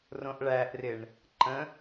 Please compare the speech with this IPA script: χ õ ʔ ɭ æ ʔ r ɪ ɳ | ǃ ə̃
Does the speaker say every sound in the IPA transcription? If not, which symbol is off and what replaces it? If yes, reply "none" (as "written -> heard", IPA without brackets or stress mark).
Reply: χ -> r